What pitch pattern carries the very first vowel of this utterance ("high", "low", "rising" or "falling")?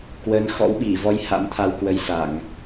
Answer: rising